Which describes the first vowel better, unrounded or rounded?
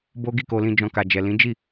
rounded